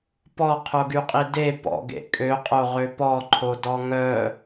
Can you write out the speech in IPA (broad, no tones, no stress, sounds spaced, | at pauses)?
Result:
p ɔ qʰ o ɡ y qʼ i d e p ɔ̰ ɡ ḛ kʼ ø qʼ o ʁ ø p ɔ ǃʰ o d ɔ ŋ œ